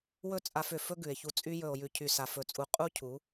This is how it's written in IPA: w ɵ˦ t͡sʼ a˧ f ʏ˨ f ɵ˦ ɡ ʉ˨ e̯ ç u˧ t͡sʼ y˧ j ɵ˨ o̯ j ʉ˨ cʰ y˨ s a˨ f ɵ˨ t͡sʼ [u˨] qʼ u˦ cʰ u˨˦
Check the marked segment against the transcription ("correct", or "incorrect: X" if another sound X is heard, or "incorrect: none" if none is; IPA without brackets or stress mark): correct